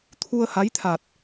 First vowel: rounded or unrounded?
rounded